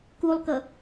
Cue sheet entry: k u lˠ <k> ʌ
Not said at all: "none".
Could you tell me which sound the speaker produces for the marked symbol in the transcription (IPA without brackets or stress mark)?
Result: k